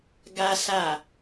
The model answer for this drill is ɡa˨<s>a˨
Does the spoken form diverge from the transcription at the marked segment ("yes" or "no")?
no